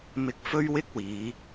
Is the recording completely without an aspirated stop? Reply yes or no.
yes